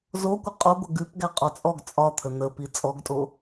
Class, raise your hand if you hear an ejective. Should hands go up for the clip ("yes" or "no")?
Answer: yes